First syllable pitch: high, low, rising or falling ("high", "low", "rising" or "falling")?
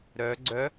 rising